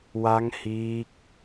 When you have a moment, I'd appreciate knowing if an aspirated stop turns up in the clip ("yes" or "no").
no